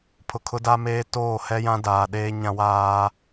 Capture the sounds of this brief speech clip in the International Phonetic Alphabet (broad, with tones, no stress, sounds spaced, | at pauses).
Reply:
pʰ ʊ˨ kʰ ʊ˦ d a˦ m eː˦ t oː˦˨ h ɛ˦ j ã˦ d aː˨ ɗ eː˦ ɲ ã˦ w aː˦